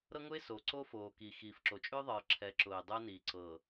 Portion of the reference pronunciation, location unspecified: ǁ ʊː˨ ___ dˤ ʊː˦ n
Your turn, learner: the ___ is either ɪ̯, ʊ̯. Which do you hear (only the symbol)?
ɪ̯